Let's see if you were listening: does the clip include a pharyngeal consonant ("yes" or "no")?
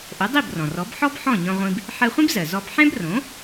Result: yes